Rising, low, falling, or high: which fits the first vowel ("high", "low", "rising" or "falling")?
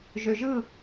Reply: low